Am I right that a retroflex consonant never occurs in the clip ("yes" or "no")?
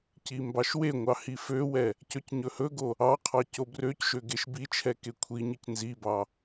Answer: yes